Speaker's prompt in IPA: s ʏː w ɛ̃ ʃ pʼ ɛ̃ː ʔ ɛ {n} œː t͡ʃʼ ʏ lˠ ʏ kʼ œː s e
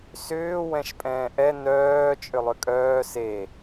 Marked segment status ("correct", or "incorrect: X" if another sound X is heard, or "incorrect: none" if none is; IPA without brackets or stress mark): correct